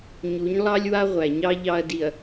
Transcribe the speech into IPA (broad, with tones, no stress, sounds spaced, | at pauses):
ɲ u˨˦ ɲ lˠ ɑ˦ lʲ w a˦ ʁʷ æ˨ ɲ ɑ˦ ʎ ɑ˦ ɐ̯ d i˨ ɐ̯